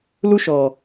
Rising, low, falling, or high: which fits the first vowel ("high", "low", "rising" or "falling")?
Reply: high